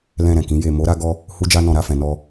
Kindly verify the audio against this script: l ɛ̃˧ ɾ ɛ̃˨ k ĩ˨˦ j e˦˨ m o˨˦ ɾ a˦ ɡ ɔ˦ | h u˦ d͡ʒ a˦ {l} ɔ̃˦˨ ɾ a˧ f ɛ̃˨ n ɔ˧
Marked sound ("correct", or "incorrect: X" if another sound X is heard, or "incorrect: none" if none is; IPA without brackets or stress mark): incorrect: n